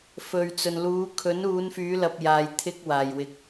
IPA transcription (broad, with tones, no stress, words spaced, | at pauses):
fɵ˨ɥt͡sɵ˨n luː˨˧kʰɵ˨˥n uː˨˧nfyː˨˧lɐ˨p̚ jaː˨jt̪ʰɪ˧k̚ waː˨˩jwɪ˨˥k̚